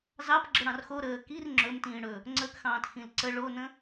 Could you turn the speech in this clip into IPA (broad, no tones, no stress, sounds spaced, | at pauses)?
z ɑ p ɡ͡ǁ ə ɽ ɑ̃ r x o ɾ əː k i r ŋ͡ǁ ɵ m t ĩː ɽ ɵ | ŋ͡ǀ ə k x ɑ̃ː t x ĩ l ǀ ə ɭ o n ə̃